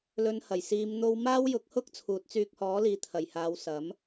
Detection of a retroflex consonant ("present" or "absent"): absent